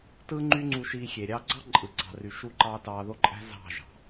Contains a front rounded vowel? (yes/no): yes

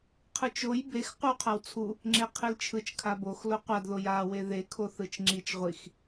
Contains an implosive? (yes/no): no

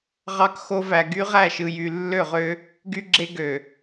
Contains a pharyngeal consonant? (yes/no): no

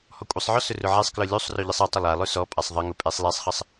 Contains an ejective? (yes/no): yes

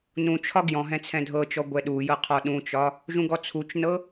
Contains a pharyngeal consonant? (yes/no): no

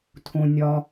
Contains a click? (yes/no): no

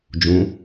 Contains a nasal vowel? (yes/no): yes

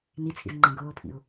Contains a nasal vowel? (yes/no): yes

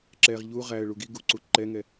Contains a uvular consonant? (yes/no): yes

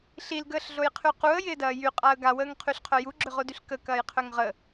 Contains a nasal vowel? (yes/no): no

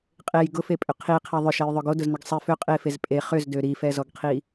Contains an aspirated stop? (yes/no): yes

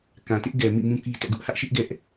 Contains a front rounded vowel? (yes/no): no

